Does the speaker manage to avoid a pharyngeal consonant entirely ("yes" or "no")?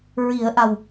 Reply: yes